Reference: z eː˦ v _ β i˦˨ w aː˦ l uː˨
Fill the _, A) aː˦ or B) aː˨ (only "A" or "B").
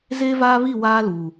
A